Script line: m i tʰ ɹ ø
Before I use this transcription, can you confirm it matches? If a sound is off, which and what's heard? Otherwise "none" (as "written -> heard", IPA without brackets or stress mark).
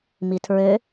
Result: none